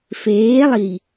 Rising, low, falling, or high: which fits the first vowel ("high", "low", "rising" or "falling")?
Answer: rising